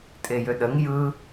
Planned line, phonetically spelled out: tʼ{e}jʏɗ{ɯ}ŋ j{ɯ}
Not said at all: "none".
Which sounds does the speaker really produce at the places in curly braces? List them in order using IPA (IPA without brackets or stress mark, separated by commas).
e, ə, ɯ